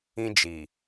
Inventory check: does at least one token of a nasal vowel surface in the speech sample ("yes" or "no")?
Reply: yes